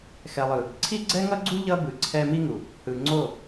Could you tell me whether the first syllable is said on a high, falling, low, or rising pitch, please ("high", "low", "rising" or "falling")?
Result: low